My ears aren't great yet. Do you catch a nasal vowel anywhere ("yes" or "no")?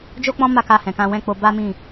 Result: yes